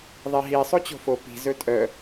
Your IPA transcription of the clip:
ðˤiɦi sˤot͡ɕo̤fo pi̤ zɵtʼœ

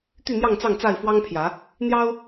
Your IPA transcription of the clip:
t̪y˥˨n̪jɑ˥˨ŋt͡sɑ˥˨ŋ t͡sa˥˨ɪ̯fwɑ˦ŋpʰjä˨˦ | n̪jɑ˦ʊ̯

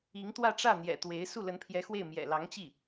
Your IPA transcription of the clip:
i˧˥ŋ t̪wä˥˧ʈ͡ʂä˥˩n̪jɛ̰˨˩t̪we˧˥ɪ̯ su˥˩lə˧˥npʰjɛ˧˥xwe˥˩ɪ̯ mjɛ̰˨˩lɑ˧˥ŋt͡ɕi˥˩

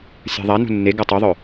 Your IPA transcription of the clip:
sʲa̤ðˤa nṳnːe ɡatˤoðˤœ

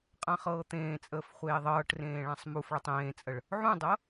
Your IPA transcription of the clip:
qʼãχɤːt̪ẽːt͡sʼəːf χʷeːðˤɤːʈrẽː ɭãsˤmufɭətˤ ẽːt͡sʼəɭ | ʕũdˤɤ

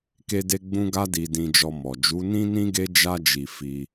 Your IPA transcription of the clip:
ke˧de˧ ɡ͡bũ˦ɡa˦ di˧ dĩ˧d͡ʒɔ˧mɔ˨ d͡ʒu˨˦nĩ˦nĩ˦ ɡe˦ d͡ʒa˧d͡ʒi˨ fi˧

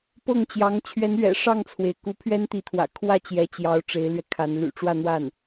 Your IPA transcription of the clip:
pɤ˥˩ŋt͡ɕjɑ˧˥ŋ t͡ɕʰɥɛ˧˥nɥɛ̰˨˩ ʂɑ˥˩ŋt͡sʰwe˩ɪ̯ ku˧˥pʰɥɛ˥nt̪i˧˥t̪ʰwä̰˨˩ kʰwä˥˩ t͡ɕjɛ˧˥t͡ɕjɑ˧˥ʊ̯ ʈ͡ʂe˧˥ɪ̯lɥɛ˧kʰa˧˥n ly̰˨˩ʈ͡ʂwä˥˧n̪wa˥˩n

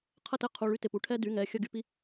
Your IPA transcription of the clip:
qʰə˥˩tɪ˥˩qʰu˩˧˩ ɭy˦ tɪ˩˧˩pu˩˧˩ʈʰɛ˦ dy˩˧˩ŋɛ˩˧˩ xʲə˥˩ɡy˥˩pi˦

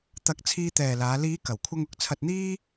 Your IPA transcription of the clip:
t̪ɐ˨˥k̚ t͡sʰiː˧t̪ɛː˨laː˨˧ liː˨˧ kɐ˨˩w kʷʰɐ˧ŋʊ˨˥k̚t͡sʰɐ˧t̚n̪iː˥

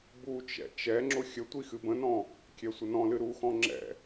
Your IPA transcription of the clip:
but͡ʃɛ̰ t͡ʃɛŋ͡ǁʊ xʲə tʷixɨbə̃nɔ̃ | kʲɛsʷənɔ̃lɨ ɾuxɔ̃ ŋ͡ǁɛ̰

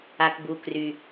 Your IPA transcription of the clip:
a˩kbu˩ kry˩

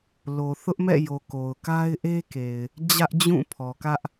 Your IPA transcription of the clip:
lo˨θʊ˦ʔmɛ̰˦˨jo˨ ko˨ʊ̯ka˦ɪ̯ʔe˦ke˨ɪ̯ | d͡ʑä˦ʔd͡ʑũ˦˨pʰɔ˨kä˦ʔ

